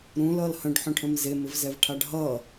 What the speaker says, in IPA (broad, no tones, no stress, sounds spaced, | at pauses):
ɾ ũ l ʌ l h ə̃ ɖ ħ œ̃ ʈʰ ə̃ m z e m ɪ v z ɛ v ʈʰ a ɖ ɦ ʌ